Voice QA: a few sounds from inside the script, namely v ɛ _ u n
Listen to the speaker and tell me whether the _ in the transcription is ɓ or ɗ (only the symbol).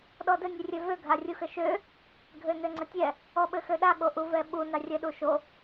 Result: ɓ